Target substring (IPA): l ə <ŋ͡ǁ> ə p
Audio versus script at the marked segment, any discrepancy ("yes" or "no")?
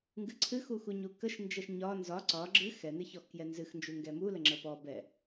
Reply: no